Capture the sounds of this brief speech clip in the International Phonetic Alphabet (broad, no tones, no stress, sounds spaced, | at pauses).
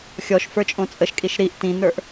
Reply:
xʲ ɔ ʃ f ə˞ t͡ʃʼ õ t͡sʼ ə ʃ kʼ i ʃ ɾ i ʔ t ĩ n ə˞ ʔ